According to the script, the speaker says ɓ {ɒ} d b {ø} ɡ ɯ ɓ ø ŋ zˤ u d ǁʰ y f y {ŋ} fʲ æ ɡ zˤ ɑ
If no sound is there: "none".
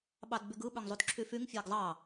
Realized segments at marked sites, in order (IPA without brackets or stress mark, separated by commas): ɑ, y, ŋ